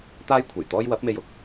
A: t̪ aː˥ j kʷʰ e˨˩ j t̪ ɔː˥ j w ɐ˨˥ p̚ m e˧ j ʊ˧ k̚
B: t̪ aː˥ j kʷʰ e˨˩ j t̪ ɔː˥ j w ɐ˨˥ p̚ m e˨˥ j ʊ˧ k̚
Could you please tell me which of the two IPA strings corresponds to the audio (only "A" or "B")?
A